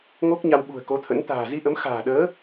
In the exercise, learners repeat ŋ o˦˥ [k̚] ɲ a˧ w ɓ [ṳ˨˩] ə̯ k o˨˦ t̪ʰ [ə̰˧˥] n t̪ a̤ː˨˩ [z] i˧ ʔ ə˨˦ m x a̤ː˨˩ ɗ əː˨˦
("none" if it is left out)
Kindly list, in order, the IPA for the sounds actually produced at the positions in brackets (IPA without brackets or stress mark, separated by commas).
k̚, ṳ˨˩, ə̰˧˥, z